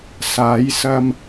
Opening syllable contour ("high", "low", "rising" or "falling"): rising